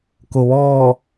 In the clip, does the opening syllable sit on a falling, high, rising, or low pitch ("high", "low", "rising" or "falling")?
low